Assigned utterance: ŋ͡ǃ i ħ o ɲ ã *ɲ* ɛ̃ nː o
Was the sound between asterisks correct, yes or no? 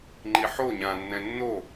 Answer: no